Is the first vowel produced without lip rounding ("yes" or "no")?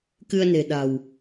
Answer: yes